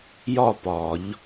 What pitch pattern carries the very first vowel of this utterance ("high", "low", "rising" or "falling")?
falling